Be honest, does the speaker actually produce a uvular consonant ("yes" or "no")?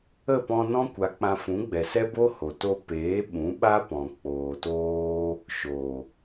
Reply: no